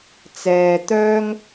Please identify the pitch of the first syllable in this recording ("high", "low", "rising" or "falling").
low